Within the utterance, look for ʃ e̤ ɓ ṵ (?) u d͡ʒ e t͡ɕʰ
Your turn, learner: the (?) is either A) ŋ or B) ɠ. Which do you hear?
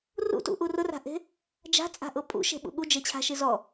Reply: B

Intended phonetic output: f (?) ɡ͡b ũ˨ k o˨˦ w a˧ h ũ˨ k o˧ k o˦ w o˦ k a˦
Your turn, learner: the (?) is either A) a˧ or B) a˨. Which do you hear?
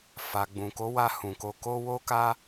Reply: B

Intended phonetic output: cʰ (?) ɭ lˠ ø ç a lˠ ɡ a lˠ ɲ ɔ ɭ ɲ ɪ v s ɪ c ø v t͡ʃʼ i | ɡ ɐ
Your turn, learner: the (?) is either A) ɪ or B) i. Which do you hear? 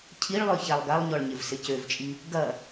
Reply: B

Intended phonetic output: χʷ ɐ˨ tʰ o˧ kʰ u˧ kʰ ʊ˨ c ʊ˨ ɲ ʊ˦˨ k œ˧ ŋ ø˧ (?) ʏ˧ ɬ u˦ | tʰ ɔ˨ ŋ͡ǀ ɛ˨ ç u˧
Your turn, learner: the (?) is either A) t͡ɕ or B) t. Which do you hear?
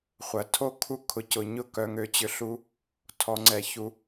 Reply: A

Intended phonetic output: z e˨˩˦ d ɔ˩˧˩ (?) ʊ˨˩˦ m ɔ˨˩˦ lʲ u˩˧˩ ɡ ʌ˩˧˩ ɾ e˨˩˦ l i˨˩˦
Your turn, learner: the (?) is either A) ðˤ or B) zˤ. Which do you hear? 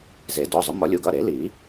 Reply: B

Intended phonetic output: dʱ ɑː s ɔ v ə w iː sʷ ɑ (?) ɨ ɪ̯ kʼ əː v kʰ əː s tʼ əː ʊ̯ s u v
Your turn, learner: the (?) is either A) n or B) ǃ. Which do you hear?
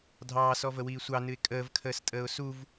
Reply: A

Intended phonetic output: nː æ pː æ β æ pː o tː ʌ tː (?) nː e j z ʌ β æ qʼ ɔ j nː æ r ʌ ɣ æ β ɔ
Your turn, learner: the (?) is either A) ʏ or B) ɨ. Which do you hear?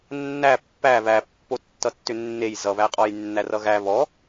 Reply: A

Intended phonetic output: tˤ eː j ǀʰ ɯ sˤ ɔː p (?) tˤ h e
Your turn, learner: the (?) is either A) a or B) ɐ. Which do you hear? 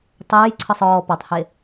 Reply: A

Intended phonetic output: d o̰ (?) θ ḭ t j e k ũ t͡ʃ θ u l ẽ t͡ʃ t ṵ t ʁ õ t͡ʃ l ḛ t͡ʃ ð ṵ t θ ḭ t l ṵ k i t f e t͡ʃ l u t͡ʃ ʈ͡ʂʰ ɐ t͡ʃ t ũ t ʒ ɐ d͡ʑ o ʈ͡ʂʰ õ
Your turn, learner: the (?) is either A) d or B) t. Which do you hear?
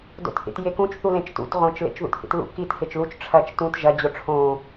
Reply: B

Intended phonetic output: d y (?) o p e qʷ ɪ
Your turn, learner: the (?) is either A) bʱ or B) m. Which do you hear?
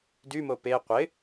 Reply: B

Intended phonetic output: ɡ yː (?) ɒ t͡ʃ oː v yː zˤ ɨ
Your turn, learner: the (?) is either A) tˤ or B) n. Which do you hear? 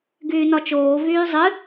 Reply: B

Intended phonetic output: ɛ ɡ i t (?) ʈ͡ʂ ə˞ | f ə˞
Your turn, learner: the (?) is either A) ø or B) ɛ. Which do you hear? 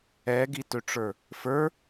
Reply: A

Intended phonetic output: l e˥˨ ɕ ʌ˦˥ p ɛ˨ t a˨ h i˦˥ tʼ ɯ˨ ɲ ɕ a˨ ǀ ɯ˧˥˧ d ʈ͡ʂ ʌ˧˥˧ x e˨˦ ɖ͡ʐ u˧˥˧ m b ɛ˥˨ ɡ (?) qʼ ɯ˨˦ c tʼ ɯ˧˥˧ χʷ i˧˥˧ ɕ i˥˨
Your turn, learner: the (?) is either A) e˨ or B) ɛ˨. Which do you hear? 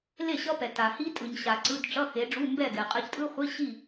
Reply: B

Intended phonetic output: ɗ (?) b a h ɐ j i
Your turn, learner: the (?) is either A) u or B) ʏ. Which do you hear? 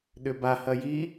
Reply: B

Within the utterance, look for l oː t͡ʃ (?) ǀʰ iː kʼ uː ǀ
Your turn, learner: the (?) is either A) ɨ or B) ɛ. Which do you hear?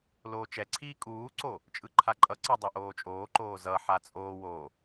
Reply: B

